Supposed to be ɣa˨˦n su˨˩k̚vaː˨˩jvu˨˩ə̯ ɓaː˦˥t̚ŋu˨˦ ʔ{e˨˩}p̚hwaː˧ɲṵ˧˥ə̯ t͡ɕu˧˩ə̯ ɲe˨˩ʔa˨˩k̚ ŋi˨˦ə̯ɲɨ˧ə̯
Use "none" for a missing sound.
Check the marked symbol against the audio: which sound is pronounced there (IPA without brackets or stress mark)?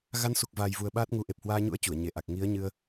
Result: e˨˩